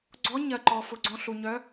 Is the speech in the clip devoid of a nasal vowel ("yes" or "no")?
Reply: no